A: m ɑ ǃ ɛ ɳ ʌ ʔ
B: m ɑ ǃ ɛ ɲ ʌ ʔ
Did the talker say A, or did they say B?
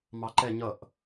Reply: B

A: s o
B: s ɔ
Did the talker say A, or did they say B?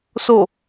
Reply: A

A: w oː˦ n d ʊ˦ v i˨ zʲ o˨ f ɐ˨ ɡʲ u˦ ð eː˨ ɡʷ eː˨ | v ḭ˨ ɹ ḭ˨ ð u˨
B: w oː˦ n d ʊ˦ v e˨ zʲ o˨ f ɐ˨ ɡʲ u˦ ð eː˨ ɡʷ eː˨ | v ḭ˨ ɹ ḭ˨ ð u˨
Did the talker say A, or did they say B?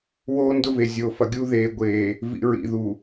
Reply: B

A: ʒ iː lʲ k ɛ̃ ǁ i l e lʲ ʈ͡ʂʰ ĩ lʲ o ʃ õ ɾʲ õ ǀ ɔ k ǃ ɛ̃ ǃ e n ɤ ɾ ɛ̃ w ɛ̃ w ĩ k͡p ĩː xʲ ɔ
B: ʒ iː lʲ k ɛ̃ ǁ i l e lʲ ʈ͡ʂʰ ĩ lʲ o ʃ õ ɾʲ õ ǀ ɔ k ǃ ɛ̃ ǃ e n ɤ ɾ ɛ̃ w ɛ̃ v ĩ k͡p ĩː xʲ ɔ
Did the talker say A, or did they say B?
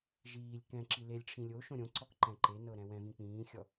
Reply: B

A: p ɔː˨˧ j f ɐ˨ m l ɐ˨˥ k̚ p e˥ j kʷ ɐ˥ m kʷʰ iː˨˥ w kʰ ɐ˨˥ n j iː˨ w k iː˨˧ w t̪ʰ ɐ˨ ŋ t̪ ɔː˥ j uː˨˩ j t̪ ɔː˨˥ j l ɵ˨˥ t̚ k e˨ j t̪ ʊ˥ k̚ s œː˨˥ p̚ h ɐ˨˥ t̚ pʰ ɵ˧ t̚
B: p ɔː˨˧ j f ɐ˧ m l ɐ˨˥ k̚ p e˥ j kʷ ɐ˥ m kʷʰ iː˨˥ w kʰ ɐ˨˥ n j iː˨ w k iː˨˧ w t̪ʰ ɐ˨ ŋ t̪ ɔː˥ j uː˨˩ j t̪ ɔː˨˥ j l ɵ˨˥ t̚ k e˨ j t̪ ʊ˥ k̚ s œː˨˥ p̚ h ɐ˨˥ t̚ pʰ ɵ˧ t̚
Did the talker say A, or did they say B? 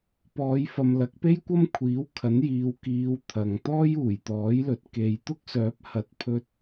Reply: A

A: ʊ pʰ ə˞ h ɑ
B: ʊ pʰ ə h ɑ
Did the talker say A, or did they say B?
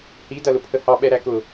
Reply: B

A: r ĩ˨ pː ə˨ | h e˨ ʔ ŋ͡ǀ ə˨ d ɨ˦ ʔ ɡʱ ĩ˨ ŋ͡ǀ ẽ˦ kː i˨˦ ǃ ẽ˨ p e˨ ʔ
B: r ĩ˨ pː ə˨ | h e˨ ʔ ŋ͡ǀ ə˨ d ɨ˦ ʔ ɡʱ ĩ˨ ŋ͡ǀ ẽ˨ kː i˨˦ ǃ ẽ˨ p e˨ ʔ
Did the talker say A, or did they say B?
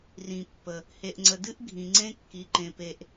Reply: A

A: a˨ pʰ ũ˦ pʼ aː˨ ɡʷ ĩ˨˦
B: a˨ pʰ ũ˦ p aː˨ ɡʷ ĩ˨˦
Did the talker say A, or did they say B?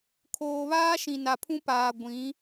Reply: B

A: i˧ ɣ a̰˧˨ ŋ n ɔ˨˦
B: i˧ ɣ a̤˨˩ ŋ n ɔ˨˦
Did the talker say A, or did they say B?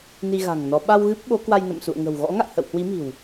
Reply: B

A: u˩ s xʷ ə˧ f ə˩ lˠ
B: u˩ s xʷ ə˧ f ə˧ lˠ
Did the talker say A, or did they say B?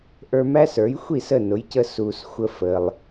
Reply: A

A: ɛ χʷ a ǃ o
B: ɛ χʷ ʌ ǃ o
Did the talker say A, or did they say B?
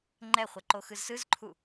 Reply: B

